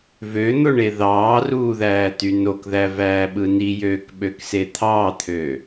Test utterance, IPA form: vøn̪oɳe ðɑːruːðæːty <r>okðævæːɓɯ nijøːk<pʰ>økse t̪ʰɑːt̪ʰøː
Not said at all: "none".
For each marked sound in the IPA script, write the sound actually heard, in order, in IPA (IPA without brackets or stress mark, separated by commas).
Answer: n, ɓ